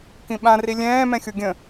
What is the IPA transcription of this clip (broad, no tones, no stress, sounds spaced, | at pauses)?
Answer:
k ĩ ɓ ã r i lʲ ɛ̃ː m ɛ̃ xʲ u ɡʲ ə̃